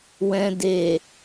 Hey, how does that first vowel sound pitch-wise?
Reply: low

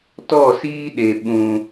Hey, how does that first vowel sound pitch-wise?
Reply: falling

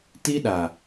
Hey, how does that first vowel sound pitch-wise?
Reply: high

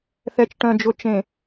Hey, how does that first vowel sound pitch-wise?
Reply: low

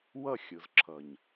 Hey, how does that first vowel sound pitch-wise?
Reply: falling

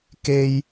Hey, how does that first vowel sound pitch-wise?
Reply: high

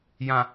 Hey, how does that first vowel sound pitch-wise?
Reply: low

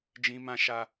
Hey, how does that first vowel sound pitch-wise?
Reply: high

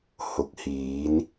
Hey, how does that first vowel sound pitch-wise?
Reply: low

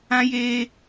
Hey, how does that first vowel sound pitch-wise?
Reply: high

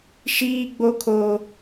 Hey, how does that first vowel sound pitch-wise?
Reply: high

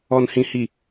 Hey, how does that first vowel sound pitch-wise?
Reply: low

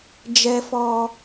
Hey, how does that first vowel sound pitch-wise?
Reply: high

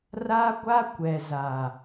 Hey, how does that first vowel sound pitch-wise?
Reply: high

